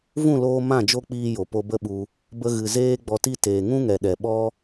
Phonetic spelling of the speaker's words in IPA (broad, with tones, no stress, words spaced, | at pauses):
vũ˦˨loː˧ mã˦˨d͡ʒo˦k͡piː˧ jo˨po˧bə˦ɓu˧ | bə˧ɣɨ˨ zeː˦ɡ͡bɔ˧ti˦ teː˨ŋũ˦ŋɛ˨ɗɛ˨ ɓɔ˦